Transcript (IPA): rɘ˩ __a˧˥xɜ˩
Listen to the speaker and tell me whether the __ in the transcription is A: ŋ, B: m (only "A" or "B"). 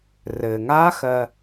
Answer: A